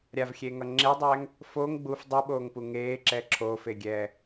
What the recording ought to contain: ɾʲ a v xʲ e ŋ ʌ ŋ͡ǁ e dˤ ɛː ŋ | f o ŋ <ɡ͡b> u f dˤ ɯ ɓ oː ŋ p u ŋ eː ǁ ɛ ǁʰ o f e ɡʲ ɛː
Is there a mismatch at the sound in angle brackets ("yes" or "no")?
no